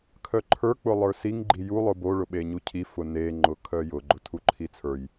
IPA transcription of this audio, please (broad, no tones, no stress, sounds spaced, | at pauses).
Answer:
kʰ œ ǃʰ ə˞ k͡p ʊ lˠ ə˞ s i ŋ ɡ͡ǃ i j u lˠ ʊ b o ɭ ʊ ɓ e ɲ u cʰ i f ʊ n e ŋ͡ǃ ʊ kʰ œ j ʊ ɡ͡ǃ ʊ tʰ u ǃʰ i t͡sʰ ə˞ j